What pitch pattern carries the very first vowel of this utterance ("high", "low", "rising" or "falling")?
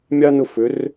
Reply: high